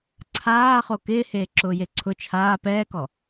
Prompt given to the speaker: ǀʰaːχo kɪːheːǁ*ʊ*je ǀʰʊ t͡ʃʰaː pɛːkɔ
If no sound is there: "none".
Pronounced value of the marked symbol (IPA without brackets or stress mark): ʊː